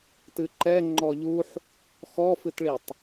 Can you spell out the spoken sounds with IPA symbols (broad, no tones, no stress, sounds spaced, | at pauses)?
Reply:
t ɨ ǃ ɛ ŋ͡ǃ ɔ ʎ u ħ | x ɔ f ɨ t ɭ i tˤ